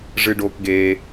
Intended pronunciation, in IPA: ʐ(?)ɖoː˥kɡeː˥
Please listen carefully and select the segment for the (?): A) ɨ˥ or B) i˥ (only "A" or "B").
A